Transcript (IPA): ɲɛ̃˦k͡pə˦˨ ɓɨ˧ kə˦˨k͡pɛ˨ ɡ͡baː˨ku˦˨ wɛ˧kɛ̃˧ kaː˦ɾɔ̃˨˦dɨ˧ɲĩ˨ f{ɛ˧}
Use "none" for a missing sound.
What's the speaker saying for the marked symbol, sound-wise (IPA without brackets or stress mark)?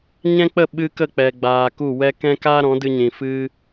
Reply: ɨ˧